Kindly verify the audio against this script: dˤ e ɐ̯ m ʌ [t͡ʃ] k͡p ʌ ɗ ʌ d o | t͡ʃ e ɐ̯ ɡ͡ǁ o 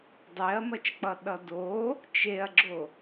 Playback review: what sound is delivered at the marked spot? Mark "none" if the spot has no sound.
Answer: t͡ʃ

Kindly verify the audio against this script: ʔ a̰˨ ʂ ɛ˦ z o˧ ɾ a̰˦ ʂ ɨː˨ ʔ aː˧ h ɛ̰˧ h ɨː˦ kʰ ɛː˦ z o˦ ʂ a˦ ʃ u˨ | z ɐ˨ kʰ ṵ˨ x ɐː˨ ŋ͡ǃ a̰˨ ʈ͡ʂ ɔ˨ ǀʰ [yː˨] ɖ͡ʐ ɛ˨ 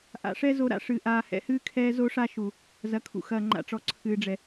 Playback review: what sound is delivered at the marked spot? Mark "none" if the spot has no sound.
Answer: ɨː˨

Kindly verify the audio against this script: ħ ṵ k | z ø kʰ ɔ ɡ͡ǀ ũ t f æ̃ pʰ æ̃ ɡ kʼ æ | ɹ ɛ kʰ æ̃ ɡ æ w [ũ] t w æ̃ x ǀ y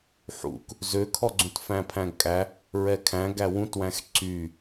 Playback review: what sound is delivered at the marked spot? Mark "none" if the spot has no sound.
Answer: ũ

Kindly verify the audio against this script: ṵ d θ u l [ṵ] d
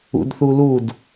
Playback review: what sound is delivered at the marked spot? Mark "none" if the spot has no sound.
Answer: u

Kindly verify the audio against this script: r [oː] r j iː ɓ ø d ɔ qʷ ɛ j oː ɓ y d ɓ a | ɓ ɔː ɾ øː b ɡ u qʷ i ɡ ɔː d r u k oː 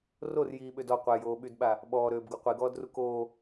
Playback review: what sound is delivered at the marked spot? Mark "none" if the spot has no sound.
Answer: o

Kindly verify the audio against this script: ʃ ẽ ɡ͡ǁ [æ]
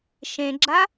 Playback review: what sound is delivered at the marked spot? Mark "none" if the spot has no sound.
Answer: a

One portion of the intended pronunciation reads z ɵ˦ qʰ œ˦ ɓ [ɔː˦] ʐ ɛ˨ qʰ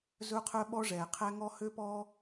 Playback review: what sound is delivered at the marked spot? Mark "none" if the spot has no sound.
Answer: ɔ˦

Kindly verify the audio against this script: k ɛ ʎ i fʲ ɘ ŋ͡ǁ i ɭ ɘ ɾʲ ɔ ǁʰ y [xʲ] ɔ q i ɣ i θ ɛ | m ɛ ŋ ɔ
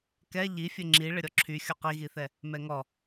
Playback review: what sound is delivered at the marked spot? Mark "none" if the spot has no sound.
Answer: xʲ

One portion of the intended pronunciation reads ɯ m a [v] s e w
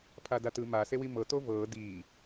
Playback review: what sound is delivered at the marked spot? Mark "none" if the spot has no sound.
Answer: none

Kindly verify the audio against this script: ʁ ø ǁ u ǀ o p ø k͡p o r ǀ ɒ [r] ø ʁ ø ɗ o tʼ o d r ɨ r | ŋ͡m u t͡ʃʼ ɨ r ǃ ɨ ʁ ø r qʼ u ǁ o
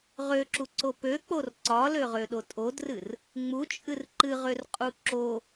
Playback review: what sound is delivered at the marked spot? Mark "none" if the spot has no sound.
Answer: l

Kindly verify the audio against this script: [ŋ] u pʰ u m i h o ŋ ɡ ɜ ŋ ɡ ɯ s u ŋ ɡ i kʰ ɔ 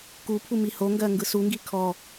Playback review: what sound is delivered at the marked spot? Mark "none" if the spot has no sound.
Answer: k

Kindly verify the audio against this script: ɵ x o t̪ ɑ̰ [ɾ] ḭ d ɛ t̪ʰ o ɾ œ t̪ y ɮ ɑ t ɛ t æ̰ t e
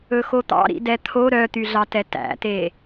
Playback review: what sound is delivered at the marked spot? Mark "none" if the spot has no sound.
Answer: ɾ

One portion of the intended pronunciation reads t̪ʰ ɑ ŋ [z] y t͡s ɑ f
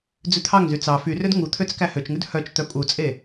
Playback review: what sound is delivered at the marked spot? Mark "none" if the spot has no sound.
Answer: z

